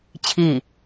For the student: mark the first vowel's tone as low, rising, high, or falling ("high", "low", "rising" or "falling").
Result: falling